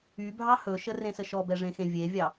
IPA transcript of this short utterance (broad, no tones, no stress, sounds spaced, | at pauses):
y bʱ ɑ h ɵ ʃ ə r ẽ s ə ʃ ɔ b ɛ ʐ ẽ x ẽ vʲ e vʲ ɑ